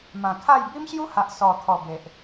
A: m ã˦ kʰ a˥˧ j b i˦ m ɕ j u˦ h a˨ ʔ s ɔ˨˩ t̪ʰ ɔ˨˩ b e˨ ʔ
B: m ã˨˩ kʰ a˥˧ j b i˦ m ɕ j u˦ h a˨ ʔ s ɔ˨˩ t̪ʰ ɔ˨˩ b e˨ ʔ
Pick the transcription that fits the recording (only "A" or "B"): B